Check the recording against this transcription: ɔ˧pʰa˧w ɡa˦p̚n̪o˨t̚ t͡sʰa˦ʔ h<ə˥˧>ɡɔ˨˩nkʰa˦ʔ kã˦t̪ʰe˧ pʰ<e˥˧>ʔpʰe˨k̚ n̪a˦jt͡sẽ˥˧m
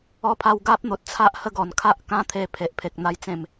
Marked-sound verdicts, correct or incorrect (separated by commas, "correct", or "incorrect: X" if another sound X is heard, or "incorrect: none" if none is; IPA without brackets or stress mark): correct, incorrect: e˨